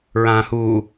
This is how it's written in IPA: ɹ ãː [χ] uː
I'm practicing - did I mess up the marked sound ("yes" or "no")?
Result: yes